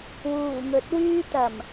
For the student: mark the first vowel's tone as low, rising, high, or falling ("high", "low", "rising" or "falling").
low